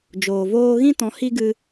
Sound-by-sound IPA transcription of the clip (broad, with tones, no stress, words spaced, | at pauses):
d͡ʒoː˨voː˦ ɣĩ˦tɔ̃˨˦ hi˦ɡɨ˧